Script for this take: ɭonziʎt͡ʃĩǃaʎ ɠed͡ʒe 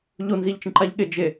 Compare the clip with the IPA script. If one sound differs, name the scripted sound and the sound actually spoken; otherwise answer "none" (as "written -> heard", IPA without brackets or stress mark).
ɭ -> ʎ